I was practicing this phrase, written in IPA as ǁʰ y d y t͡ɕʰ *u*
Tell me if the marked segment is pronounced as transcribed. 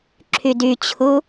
yes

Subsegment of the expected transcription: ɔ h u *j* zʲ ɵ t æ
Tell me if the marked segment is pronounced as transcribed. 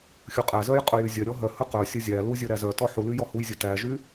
yes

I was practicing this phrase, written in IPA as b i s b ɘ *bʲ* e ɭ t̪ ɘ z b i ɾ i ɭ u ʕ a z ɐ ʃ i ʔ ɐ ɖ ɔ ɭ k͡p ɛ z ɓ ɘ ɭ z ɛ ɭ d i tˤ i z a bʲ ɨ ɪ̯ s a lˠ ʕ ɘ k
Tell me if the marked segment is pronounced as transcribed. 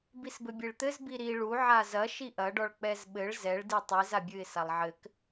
yes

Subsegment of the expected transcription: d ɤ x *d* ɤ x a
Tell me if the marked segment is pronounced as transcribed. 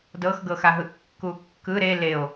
no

